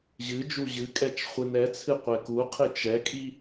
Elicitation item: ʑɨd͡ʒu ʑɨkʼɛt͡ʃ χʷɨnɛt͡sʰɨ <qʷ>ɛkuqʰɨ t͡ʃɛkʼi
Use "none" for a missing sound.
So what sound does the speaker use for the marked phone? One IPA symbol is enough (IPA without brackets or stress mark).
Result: qʷ